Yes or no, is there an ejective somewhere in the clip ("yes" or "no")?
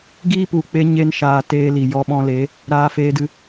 no